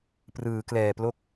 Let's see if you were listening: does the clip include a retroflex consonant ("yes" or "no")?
no